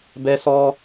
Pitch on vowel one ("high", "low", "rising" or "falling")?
high